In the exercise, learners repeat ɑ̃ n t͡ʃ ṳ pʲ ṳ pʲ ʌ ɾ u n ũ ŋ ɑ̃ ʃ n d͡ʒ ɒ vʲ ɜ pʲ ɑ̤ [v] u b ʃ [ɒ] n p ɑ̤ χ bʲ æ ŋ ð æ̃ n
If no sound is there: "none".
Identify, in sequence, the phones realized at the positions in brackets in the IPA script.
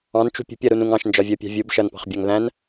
vʲ, ʌ

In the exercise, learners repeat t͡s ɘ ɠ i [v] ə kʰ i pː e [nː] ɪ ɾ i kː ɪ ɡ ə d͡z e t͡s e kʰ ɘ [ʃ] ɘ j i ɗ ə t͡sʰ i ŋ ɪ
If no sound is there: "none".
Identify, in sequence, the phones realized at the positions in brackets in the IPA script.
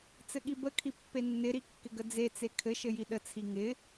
b, nː, ʃ

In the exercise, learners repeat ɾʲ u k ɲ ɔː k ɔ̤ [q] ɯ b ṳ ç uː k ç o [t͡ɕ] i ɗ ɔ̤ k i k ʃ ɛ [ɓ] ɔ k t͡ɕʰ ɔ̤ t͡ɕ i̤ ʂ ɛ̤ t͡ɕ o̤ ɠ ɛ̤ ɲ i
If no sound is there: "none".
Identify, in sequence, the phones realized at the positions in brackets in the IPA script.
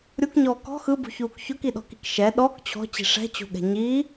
x, k, ɗ

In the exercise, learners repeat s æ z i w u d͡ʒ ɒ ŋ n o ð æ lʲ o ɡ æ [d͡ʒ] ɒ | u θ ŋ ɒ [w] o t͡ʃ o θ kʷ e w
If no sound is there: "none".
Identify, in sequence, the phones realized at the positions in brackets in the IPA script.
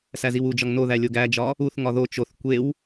d͡ʒ, ð

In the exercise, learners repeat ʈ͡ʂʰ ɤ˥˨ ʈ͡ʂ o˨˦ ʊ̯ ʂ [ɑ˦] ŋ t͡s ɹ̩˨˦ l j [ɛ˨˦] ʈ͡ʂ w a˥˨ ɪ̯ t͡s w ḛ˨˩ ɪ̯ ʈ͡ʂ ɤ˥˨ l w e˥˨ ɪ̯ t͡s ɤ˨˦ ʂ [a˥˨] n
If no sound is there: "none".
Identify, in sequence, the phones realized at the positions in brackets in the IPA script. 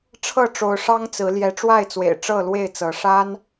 ɑ˦, ɛ˨˦, a˦

